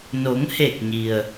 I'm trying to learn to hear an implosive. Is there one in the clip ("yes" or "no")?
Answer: no